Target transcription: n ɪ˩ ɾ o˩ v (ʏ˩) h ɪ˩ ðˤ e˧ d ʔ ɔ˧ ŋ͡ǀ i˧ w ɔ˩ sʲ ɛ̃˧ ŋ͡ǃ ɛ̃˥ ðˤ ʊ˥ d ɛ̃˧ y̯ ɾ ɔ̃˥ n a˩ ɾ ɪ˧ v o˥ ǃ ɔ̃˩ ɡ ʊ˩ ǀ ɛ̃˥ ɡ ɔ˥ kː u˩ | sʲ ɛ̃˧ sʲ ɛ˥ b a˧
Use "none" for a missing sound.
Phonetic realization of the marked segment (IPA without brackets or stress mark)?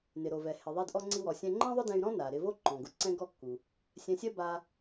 ɛ˩